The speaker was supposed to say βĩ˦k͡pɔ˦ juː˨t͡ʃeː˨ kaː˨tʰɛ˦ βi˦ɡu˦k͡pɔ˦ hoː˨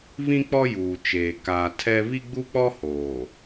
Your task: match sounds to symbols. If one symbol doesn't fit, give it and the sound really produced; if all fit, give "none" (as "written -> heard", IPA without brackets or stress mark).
ɡ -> ɡ͡b